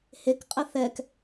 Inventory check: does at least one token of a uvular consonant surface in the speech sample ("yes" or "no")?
yes